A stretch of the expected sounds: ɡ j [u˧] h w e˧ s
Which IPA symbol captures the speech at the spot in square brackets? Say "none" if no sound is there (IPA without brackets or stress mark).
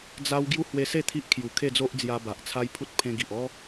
u˦